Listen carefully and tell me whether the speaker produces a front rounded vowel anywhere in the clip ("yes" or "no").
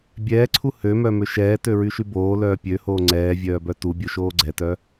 yes